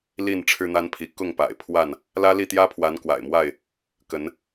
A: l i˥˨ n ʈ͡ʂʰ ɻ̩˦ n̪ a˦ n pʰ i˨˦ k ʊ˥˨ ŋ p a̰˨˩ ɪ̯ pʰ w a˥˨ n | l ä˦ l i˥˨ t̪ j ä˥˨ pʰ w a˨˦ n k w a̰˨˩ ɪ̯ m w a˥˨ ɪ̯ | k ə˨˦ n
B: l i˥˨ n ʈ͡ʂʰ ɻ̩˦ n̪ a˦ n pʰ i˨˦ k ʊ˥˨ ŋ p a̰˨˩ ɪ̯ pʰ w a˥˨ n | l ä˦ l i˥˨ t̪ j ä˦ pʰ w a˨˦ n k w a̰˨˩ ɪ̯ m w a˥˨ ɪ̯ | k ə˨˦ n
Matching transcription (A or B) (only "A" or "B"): B